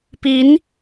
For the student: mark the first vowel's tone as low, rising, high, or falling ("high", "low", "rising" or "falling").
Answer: rising